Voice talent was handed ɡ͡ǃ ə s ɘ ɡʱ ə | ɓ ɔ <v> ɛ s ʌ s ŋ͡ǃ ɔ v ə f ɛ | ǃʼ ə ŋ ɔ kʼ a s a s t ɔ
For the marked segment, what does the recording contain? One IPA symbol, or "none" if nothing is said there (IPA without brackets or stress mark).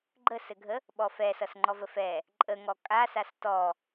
f